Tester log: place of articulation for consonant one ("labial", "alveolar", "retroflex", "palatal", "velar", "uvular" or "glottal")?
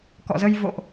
velar